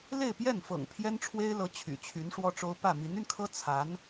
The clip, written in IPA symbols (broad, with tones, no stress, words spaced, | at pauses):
le˥˧ɪ̯pjɛ˥˩nfɤ̰˨˩ŋ pʰjɛ˥nʈ͡ʂʰwe˥ɪ̯lɤ˧˥ t͡ɕʰy̰˨˩t͡ɕʰy˧˥nʂwɔ˥ʈ͡ʂo˥ʊ̯ pä˥˩ mi˧˥ny˧nkʰɤ˥ t͡sʰa˧˥n